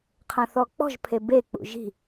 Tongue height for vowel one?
low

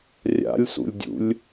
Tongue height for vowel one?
low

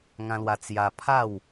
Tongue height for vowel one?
low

